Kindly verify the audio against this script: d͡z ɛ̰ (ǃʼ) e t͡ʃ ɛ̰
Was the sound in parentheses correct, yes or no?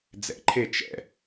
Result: no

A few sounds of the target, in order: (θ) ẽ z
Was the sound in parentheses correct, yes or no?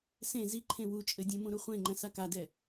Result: no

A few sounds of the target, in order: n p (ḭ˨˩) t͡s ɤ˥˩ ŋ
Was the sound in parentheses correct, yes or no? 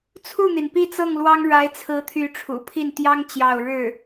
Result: no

